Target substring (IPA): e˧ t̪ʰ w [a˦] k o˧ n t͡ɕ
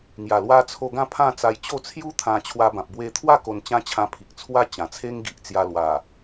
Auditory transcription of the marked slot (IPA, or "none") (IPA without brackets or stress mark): a˥˧